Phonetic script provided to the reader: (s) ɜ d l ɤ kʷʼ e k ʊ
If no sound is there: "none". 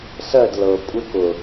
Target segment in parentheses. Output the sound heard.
s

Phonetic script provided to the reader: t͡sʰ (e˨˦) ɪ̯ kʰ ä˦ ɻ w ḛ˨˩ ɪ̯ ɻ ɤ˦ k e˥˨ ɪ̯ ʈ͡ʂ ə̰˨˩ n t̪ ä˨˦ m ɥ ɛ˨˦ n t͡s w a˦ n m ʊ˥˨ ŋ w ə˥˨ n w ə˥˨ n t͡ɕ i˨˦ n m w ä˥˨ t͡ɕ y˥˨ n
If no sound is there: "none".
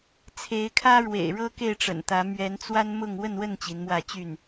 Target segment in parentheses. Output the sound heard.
e˨˦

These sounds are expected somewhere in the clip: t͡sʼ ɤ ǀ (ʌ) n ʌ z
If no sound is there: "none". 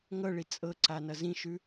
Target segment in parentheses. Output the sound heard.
a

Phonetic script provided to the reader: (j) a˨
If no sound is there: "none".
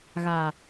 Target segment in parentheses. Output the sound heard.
ɣ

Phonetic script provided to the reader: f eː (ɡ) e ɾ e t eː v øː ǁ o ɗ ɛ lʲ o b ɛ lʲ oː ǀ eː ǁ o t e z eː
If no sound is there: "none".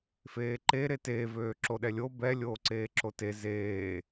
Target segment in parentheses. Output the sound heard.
ǃ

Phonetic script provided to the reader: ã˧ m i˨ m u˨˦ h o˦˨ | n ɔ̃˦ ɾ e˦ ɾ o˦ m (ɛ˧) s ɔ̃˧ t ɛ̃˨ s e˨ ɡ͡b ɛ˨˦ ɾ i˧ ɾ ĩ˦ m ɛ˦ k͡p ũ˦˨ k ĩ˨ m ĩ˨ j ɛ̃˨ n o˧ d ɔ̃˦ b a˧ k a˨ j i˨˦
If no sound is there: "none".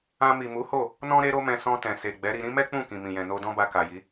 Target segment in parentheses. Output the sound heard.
ɛ̃˧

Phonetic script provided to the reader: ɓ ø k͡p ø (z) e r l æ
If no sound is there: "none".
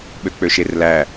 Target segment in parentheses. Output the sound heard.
ʃ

